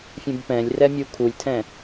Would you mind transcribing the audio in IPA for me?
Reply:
fʲ ũ b p ɛ̃ lʲ r ɛ mʲ u kʰ u lʲ tʰ ɛ̃

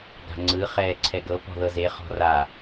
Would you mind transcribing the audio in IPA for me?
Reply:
ɡ a̤ ŋ͡ǀ ɯ χ ɛː ǀʰ ɛ ɡ ɤ p ɔ̤ ð ɤ z e χ ɔ̤ r a

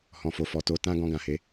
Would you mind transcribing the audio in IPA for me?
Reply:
h ɔ̃˨ f o˨ f ɔ˨ t o˧ t ã˦ ɡ ɔ̃˧ ɡ ã˨ h e˨˦

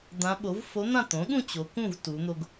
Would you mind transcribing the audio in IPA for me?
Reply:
d̪ ã˧˥ ɓ o˩˥ v f o˧˥ n̪ ã˥˨ t̪ õ˩˥ ɠ ũ˥˨ t͡ɕ o˩˧ k ũ˥˨ v t u˩˧ n̪ o˧ ɡ

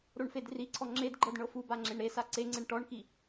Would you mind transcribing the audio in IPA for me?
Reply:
ɾ o ɳ f e d r i ǀʰ ɔ ŋ͡ǁ e d ɡ͡ǃ ɤ d ɳ ɤ f u b a ŋ͡ǁ e ɳ ɾ e s a ǀ e ŋ͡ǀ e ɳ ʈ ɔ ɳ k i

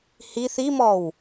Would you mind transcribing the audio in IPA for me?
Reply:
h i θ i m ɔ w

